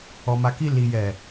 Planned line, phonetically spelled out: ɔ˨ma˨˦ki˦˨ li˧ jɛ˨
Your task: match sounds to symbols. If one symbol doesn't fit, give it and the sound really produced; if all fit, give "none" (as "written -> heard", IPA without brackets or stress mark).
none